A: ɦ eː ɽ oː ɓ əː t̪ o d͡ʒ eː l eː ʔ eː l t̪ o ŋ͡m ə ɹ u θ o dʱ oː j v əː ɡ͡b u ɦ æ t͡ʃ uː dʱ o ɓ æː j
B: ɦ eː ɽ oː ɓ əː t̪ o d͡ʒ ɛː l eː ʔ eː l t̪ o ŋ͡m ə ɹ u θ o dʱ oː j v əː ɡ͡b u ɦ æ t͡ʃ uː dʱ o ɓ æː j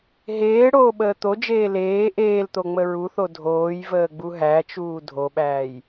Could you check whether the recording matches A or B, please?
A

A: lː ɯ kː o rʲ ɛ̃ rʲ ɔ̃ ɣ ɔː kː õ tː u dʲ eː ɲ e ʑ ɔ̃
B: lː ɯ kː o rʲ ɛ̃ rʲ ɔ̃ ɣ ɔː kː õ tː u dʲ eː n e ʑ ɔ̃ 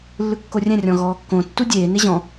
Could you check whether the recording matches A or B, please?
B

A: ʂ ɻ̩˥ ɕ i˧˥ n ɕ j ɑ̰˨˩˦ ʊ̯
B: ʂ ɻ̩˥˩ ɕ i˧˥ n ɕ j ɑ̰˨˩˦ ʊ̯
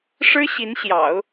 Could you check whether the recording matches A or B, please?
A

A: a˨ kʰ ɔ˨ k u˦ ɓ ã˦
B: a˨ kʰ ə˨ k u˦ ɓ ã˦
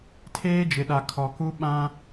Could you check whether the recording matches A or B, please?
A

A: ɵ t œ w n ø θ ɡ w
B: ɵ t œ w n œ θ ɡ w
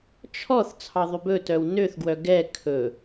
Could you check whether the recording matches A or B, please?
A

